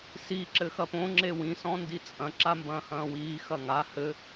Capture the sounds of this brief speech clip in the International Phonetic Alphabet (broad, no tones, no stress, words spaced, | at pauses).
si ǁɘxɐpõ ŋ͡ǁewĩ sɔ̃ndit͡sʼɐ̃ ǁambɐ̃ːhɐ̃ːwiː xɐŋa hɘ